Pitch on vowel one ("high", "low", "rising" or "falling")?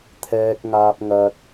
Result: low